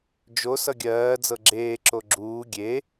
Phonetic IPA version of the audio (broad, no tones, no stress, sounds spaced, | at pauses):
d͡ʒ o s ʌ ɡʲ ɜː d͡z ɤ ɡ͡ǁ eː ǁ o ɡ͡ǁ uː ɡʲ e